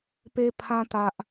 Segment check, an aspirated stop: present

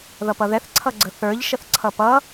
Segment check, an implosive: absent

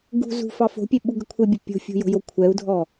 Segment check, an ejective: absent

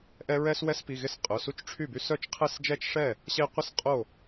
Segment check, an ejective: present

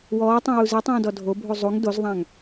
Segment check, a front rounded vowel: absent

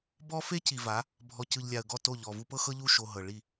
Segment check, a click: absent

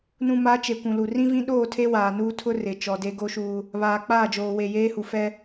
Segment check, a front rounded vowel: absent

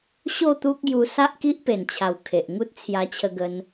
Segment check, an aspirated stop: present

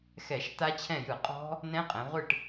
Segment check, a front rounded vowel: absent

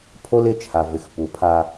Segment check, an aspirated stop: present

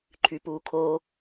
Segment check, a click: present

